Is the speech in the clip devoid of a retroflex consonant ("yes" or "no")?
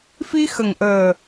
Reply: yes